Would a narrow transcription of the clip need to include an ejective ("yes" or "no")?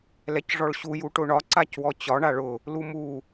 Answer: no